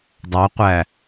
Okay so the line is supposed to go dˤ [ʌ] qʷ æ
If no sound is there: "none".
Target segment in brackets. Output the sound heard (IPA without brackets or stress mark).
ɑ